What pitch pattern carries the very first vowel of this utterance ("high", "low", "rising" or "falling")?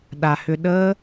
low